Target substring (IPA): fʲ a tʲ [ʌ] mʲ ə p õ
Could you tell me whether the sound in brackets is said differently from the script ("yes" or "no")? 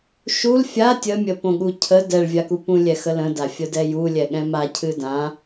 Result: yes